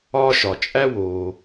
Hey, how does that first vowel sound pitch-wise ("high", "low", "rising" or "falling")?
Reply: high